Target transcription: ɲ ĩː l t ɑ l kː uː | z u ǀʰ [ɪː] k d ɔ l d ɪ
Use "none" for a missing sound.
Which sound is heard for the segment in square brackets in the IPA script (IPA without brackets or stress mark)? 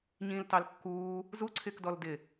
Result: ɪː